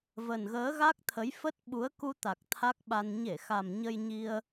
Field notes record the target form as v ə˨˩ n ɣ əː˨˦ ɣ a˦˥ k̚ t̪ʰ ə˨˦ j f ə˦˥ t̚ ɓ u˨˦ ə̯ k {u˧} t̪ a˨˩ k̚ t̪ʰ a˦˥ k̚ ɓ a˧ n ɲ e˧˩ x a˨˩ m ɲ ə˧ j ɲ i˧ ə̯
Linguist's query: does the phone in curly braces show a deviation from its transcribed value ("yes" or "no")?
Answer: no